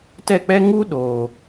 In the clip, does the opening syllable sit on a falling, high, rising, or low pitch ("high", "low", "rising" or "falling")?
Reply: falling